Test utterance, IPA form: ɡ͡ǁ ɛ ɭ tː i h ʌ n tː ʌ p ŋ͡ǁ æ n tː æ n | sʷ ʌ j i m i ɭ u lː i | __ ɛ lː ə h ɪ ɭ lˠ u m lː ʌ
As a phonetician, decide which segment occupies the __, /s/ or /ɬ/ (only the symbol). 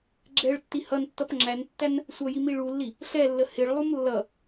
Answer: ɬ